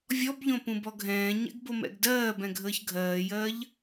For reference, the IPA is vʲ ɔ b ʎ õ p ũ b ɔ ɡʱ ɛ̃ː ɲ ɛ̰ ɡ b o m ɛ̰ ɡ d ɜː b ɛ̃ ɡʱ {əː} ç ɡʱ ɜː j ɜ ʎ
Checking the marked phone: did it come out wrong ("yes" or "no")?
no